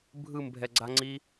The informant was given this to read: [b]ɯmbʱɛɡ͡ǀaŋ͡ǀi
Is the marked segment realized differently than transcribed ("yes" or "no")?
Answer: yes